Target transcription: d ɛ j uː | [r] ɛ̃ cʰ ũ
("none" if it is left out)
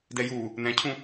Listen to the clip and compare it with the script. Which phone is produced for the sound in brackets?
n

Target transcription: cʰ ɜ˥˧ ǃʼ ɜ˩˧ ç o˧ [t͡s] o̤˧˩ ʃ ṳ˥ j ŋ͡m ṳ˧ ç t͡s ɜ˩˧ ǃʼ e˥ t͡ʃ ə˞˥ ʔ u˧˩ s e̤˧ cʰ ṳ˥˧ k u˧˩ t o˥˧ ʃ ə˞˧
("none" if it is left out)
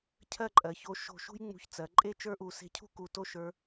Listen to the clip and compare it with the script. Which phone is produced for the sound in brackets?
ʃ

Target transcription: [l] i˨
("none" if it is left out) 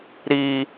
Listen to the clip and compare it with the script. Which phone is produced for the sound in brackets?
ɾ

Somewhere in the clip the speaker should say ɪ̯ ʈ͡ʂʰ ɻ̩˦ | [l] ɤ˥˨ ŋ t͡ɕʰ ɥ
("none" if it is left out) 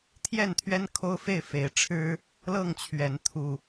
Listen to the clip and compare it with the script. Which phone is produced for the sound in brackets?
l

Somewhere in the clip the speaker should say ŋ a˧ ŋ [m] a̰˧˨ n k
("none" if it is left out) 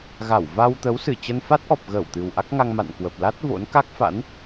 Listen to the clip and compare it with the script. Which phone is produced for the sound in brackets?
m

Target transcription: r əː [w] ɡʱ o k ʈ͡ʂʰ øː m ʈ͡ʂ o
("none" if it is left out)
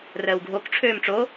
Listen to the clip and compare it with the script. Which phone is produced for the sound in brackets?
w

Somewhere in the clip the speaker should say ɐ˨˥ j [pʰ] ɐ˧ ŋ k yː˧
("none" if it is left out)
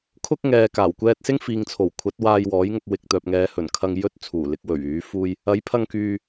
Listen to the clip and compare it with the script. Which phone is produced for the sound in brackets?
pʰ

